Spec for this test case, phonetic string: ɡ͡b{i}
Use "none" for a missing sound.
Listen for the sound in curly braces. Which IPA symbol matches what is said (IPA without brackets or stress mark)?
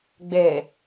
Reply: e